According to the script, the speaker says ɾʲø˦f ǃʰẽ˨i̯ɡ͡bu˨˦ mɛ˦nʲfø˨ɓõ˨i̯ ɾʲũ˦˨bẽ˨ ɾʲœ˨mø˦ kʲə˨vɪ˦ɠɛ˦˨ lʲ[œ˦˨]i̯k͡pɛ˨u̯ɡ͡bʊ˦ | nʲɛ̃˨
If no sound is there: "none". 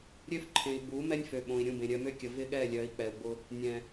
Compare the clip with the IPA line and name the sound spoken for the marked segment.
œ˨˦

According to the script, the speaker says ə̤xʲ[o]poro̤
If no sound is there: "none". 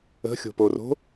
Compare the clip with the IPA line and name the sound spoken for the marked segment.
o̤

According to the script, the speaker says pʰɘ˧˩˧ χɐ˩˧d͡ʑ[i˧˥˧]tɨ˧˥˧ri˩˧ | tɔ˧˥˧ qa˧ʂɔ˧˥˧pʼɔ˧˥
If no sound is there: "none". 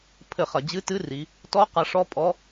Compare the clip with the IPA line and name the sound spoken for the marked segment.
ɨ˧˥˧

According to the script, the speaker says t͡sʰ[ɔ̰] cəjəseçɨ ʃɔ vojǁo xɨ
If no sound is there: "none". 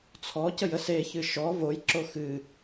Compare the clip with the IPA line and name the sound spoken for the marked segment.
ɔ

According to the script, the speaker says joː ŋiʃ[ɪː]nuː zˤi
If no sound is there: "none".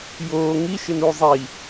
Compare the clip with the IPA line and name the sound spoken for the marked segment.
ɪ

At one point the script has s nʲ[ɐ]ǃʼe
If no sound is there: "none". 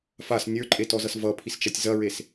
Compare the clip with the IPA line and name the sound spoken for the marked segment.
ə˞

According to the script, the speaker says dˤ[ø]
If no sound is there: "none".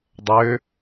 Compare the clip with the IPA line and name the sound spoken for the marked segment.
ø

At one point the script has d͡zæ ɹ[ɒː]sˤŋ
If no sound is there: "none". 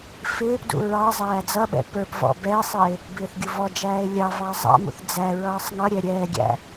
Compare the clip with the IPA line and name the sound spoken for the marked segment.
ʌː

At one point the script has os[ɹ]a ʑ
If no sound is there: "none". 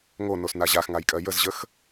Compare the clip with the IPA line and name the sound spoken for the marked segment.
n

